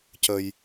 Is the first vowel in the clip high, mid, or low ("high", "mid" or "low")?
mid